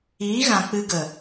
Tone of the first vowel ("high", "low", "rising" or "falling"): rising